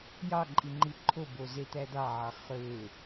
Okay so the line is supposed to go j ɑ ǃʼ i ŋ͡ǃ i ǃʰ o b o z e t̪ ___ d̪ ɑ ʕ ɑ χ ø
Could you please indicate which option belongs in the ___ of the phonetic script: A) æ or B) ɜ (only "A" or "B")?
A